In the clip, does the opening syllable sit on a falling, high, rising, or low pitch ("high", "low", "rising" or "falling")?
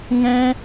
high